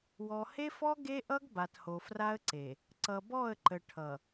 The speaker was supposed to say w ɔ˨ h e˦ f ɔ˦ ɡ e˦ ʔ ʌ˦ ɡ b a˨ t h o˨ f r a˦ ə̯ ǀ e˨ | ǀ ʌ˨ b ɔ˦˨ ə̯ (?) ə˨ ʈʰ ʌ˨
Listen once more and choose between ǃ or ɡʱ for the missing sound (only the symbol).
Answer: ǃ